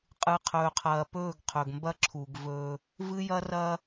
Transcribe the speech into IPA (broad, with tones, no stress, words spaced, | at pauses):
qʼɨ˨qʰɵː˨qʰɐː˨pɵː˦˨ɡ qʰɵ˨ɡ mbɐ˦ǁʰu˨ɡ vɵː˦ | vɨ˦jɐ˦rɐː˦